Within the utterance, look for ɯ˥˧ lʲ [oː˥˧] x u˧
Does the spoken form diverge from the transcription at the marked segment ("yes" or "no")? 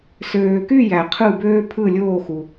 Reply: no